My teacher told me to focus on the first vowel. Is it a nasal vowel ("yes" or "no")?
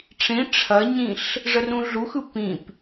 yes